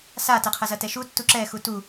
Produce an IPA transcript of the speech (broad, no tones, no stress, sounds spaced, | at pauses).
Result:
s a t ɐ qʰ ɐ z ɐ t ɛ ʃ u tː u ǁ ɛ x u t u